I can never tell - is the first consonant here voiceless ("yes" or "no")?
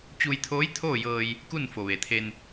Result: yes